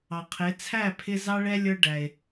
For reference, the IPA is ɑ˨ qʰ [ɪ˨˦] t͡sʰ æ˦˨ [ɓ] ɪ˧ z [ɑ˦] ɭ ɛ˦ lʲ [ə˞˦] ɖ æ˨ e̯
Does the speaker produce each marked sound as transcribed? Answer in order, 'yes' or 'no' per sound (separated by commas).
yes, no, yes, yes